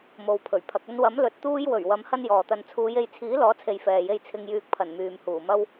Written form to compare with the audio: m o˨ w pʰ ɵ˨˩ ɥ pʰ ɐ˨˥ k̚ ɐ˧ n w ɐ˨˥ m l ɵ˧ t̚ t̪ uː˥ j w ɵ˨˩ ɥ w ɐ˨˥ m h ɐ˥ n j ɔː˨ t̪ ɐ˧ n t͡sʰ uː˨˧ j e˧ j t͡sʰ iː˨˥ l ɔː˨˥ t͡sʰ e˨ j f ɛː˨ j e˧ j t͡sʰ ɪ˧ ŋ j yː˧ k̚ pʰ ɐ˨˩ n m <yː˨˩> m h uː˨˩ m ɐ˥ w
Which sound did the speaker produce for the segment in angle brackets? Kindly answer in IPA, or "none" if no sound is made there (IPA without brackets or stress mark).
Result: yː˨